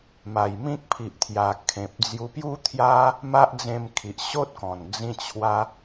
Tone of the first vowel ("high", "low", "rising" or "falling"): low